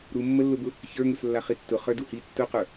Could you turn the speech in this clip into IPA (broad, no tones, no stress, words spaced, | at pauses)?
ɾumːəlːʊbʊ | çə˞ŋʊslːa χitːʊ χə˞duhi tːʊqə˞